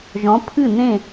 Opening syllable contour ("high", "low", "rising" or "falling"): rising